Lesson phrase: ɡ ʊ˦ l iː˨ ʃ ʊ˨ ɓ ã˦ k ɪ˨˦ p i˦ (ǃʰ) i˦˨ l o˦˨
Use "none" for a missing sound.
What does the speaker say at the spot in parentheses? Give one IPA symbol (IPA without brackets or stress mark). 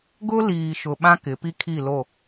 kʰ